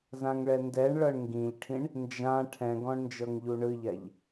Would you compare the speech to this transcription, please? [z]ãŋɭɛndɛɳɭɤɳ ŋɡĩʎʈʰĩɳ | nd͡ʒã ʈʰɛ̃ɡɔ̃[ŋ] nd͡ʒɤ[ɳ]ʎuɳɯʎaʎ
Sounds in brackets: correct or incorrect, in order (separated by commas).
correct, incorrect, incorrect